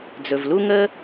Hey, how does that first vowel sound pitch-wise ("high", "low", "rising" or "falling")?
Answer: low